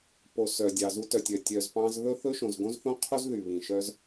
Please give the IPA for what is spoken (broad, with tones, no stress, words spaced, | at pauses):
po˩sœ˩ dʲɑ˩zu˧tœ˩tʲœ˩ tʲœ˩zpɑ̃˧zðɵ˥ θɵ˥ʃõ˩zɡõ˥zθõ˥ qʰo˥zðy˩ βĩ˩ ʃœ˧z